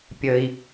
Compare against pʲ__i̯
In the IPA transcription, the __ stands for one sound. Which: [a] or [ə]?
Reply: ə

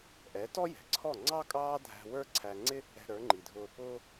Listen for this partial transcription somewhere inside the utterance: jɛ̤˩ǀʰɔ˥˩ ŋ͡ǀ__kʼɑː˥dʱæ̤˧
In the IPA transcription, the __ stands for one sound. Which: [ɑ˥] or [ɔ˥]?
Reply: ɑ˥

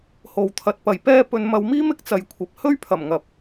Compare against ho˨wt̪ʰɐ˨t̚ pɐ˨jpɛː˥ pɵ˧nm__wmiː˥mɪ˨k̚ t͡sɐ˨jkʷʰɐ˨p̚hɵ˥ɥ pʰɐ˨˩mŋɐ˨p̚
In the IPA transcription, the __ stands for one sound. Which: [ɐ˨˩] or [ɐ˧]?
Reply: ɐ˧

